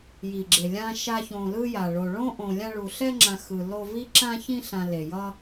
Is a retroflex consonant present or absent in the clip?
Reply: present